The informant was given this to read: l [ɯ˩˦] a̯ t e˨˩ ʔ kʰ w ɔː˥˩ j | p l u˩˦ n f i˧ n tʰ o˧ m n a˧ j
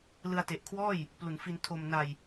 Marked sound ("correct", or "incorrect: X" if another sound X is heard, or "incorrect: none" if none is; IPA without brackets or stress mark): incorrect: ɯ˧